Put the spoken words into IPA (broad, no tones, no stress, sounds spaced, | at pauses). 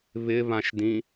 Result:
β ɪ β ã ʃ d ĩ